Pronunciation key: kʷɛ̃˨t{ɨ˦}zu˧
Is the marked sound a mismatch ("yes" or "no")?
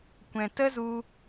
yes